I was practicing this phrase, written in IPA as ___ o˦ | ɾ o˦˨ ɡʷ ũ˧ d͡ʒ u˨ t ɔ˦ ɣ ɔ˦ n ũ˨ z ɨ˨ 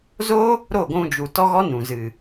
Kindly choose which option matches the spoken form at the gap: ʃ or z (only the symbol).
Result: z